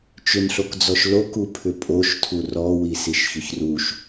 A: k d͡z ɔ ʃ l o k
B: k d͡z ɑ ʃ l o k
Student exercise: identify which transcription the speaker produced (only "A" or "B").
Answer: A